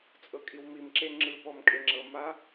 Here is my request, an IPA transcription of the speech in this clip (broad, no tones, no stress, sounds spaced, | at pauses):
t͡sʼ ɤ kʼ i w m i m ǁ e ŋ͡ǁ ɯ p ɔ m kʼ e ŋ͡ǁ ɤ m a